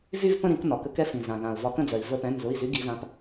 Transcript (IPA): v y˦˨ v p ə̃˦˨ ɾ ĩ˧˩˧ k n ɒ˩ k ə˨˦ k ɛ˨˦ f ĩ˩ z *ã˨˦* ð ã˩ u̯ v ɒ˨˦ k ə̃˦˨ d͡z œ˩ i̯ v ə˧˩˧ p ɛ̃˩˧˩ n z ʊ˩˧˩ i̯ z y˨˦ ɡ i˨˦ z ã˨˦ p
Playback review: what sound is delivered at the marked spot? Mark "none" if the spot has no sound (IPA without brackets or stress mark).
ã˩